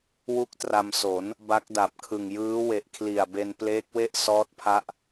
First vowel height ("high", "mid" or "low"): high